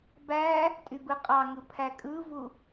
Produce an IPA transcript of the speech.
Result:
b æ | tʼ y b ɯ qʼ ɑ ŋ ɯ pʰ æ kʼ ɯ v u

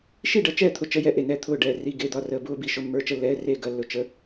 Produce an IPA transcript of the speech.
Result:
ʃ i˥˩ ɖ ɐ˥˩ t͡ʃ ɛː˥˩ t̪ʰ ʊ˥˩ t͡ʃ ə˧˥˧ j ɛ˥˩ ʔ e˥˩ n ɛː˥˩ t̪ʰ ʊː˥˩ ɖ ɛː˥˩ r i˧˥˧ ɡ e˧˥˧ d̪ ɒ˧˥˧ r əː˧˥˧ b ʊː˧˥˧ b i˥˩ ʃ ʊ˧˥˧ mː ə˞˧˥˧ t͡ʃ ə˥˩ lː ɛː˧˥˧ r eː˥˩ ɡ ɐ˧˥˧ lː ʊ˥˩ t͡ʃ ə˧˥˧

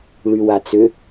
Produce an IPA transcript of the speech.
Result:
ɭ y w a t͡s ʏ

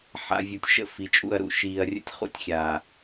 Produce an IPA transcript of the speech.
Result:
ħ a̰˨ vʲ u˨ tʲ ʃ ə̰˦˨ f i˨ t͡ʃʼ ṵ˦˨ ɐ̯ ɾ ṵ˨ ʃ iː˨ ɐ̯ rʲ ə̰˦ tʲ χ ṵ˦ tʲ xʲ aː˨

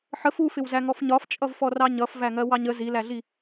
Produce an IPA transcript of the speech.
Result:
ħ ə f u f ɪ w z æ ŋ ɔ f ɲ ɒ f t͡ʃʼ ʌ v f ɔ r ɑ ɲ ʌ f v æ ŋ ɜ w ɑ ɲ ə z i l æ ɮ i

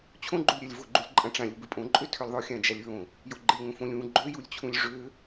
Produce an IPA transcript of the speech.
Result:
t͡ɕʰ õ ɡ͡ǃ u lʲ ɾʲ a lʲ v o ɡ͡ǃ u lʲ ǃʼ ã ʈ͡ʂ ã lʲ u b ɪ pʼ õ ǃʼ ø tʰ ø lʲ ðˤ o xʲ ã d͡ʒ a lʲ ɹ õ | j o ɡ͡ǃ ɪ lʲ ŋ õ f õ lʲ ũ ɡ͡ǃ ø j u lʲ t͡ɕʰ ũ lʲ ʐ ø

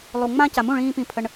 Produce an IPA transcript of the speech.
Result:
lˠ u˨ ŋ͡m ã˦ c a˨ m ũ˦˨ ɭ ĩː˧ p ĩ˧ pʰ ə˧ ɳ

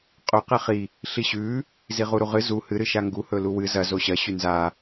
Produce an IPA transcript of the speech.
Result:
qʼ ɵ q e χ i | ɬ i ɕ ʉ | z i ʁ u ɾ u ʁ ɨ z u h ɨ ɾ ɨ ʃ a ŋ ɡ u h ɵ l u w ɨ z ɐ z o ɕ ɐ ɕ ʉ n z a

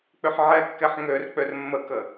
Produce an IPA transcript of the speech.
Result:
k͡p ʏ ħ ʕ ɛ kː ɛ ħ ŋ ø r k͡p ø r mː ə k ə

